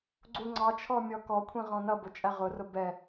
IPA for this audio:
ɡ͡ǀuŋ͡ǀɑt͡ʃʰɔ mʲɔkɔkʷʰĩ ʁɔ̃nʌbʊ t͡ʃʼæʁʊrʊ bɛ

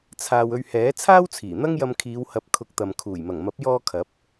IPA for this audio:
t͡sʰaː˨w ɵ˧ɥhɛː˨˥ t͡sʰaː˥wt͡sʰiː˨˩n̪ɐ˥ŋjɐ˧m kʰiː˨˧whɐ˨˥p̚ kʰʊ˨˥k̚t̪ɐ˨m kʰuː˨˩jmɐ˨˩ŋmɐ˨˥p̚jɔː˧ kʰɐ˨˥p̚

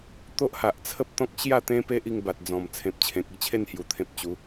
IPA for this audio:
t̪o˦ʔha˨ʔt͡sʰə˦p̚t̪ɔ̃˦k̚ ɕja˥˧ t̪ẽ˦pe˦ʔi˧ŋ ba˨t̚d͡zɔ̃˨˩m t͡sʰẽ˨p̚t͡ɕʰẽ˨k̚i˦t͡ɕʰe˥˧n hju˧t̪ʰẽ˦p̚ t͡ɕu˨˦

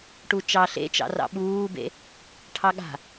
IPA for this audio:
ʈut͡ʃɑ ɬḛt͡ʃɑ̰rɑ̰ ɓuːbḛ | ʈʰɑɠa̤

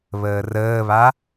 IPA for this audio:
βəːrəːβa

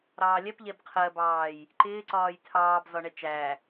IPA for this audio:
ɾɑːlʲɛp ʎɛbqʰɜbɑːj | ǃɪːǀɒːj tʰɑːbzɒ ɳɛt͡ʃæ

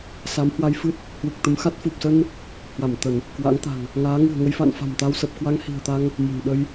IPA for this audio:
sa˨˦mhwa˧jfɨ˦˥t̚ | hwɨ˨˩k̚t̪ə˨˦mxa˦˥t̚ fu˨˩p̚sə˧n | hwa˧˩m t̪ə˧˩˨n | kwa̰˧˥ŋt̪a̤˨˩ŋ | ŋaː˨˦ŋɨ̤˨˩ə̯ŋə˧jfa̰˧˨n fa̤˨˩mt̪a˧wsə˨˩p̚ kwa˧ŋhi̤˨˩ə̯t̪a˧ŋ | mə̤˨˩nɗə˧j

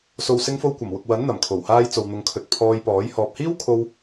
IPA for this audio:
so˨wsɪ˧ŋfo˧wkʷɐ˨˩m wʊ˨k̚wɐ˨˥n n̪ɐ˨˩mkʰo˨˩whaː˧j t͡so˨wn̪ʊ˨ŋkʰɵ˨t̚ pʰɔː˧jpɔː˨˥j hɔː˨p̚hiː˥wkʰo˧w

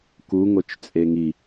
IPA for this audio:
kuŋot͡ʃt͡sʼe ŋi

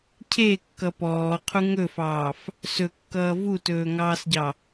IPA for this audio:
cʰekːʌ pɔːqʰu ŋɵfɑːf | sɵkːʌː vutɵːŋɑːsɟɑ

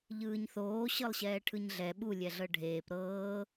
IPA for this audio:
ʎɯːɲθoː ɕɤlˠɕɛːʈʰɯɲɮɛ ɓu lʲɛɮɤɖʱeːp ɾɤː

